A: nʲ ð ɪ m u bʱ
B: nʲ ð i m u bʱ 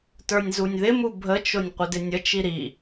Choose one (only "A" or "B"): A